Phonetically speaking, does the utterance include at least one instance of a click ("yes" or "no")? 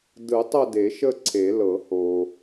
yes